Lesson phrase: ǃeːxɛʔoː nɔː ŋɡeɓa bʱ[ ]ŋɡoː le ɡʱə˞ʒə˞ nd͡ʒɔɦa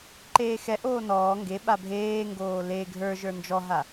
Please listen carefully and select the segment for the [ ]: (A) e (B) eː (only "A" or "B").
B